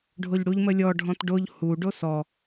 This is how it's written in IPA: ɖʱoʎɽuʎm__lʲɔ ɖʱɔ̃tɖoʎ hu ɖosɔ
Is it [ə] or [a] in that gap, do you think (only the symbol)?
ə